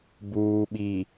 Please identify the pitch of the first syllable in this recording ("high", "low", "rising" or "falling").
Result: low